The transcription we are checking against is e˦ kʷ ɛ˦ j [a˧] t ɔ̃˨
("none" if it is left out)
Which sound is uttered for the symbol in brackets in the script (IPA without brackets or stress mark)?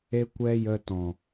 ə˧